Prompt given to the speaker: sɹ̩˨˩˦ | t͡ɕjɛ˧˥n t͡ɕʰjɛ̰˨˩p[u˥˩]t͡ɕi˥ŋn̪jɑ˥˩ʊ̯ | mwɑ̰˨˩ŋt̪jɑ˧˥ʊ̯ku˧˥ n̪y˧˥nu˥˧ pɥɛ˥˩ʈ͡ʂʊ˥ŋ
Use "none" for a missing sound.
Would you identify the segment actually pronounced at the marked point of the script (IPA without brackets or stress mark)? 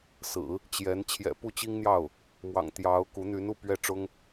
u˥˩